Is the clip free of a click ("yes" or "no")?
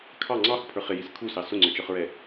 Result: no